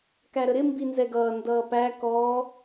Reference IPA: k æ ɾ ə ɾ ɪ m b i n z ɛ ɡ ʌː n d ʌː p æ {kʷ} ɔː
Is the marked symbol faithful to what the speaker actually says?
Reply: no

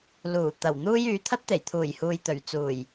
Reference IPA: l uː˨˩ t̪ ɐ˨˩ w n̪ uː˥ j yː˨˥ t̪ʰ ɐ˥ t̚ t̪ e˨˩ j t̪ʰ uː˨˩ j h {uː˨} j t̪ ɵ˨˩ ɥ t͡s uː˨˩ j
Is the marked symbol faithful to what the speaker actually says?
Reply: yes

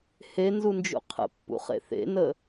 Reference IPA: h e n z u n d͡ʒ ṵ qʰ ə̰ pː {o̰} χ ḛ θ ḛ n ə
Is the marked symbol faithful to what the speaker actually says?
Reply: no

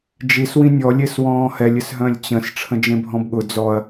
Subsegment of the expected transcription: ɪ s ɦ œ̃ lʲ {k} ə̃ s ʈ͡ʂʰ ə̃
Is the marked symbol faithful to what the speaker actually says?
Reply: no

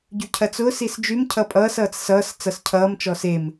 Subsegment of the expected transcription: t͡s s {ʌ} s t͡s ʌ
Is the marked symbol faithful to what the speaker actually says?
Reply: no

